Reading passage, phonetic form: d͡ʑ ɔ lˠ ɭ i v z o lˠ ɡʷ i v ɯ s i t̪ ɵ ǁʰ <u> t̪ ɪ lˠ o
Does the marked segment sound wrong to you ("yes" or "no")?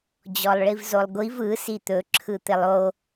yes